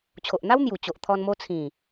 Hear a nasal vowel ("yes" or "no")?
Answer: yes